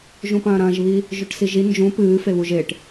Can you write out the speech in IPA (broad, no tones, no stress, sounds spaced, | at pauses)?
ʒ ũ p ɐ̃ː ɾ ɐ̃ː ʒ β i | ʒ ʉ ʈ s i ʒ i n d͡ʒ ũ p ɨː f e β u ʒ e ʈ